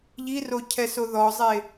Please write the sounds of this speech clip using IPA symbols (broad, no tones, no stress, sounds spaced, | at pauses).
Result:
ʎ i r o cʰ ɛ s o ð ɔ zˤ e